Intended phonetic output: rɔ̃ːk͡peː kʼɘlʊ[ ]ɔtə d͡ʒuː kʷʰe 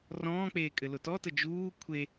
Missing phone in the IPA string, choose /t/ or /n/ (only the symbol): t